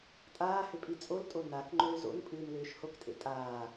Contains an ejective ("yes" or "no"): yes